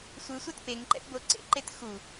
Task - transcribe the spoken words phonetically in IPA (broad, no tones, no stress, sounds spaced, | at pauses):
sʷ ɯ sʷ ɛ t p e ŋ ǃ ɛ̰ p b o ǀ ḛ ǃ e t x u